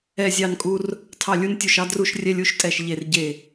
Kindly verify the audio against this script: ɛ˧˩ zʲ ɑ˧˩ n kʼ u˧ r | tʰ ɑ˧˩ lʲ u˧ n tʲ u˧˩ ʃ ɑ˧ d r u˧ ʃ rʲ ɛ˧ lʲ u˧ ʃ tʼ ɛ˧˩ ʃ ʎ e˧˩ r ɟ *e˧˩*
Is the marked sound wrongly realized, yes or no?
no